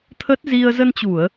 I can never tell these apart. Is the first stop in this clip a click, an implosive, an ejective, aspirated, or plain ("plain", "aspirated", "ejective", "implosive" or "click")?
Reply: aspirated